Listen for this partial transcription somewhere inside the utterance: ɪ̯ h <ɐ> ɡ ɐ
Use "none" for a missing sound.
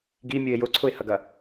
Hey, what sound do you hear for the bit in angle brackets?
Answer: ɐ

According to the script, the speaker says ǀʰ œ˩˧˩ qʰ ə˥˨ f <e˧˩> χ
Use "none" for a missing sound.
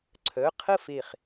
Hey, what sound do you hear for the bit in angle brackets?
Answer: e˧˩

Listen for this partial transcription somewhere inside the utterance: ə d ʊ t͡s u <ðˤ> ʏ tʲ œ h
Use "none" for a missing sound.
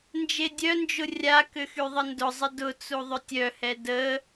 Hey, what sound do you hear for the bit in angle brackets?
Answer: ðˤ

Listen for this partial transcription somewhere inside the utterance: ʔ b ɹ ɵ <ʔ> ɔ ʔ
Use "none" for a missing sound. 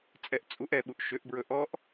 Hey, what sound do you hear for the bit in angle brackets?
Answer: ʔ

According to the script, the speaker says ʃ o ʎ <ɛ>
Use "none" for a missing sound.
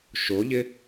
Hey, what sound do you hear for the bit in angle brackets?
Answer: ɪ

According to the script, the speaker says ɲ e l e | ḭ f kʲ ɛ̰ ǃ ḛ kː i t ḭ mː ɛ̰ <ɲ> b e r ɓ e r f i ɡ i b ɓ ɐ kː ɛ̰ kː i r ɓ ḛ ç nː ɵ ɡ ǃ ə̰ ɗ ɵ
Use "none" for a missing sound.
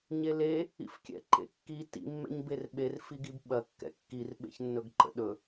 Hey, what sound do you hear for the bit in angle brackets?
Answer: ɲ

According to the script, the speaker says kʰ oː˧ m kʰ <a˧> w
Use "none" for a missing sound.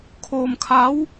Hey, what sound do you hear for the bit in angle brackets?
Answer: a˧˥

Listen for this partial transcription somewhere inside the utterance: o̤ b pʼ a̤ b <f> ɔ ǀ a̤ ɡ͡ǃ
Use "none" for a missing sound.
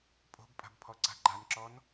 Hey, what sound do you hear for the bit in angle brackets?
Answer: pʰ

